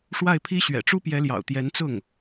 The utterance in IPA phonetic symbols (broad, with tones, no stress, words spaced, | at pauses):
ʂwa˥˩ɪ̯pʰi˥ ɕɥɛ̰˨˩ʈ͡ʂu˥pjɛ˧˥ljɑ̰˨˩ʊ̯ t̪jɛ˧˥nt͡sʊ˥˩ŋ